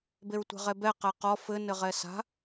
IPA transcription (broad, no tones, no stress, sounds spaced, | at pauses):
b e ɹ tʷ ɛ̤ ʁ ɛ b ɛ q ɛ q ɔ f ɘ n ɘ ʁ ɛ s a̤